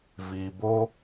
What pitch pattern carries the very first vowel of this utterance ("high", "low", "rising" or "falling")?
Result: low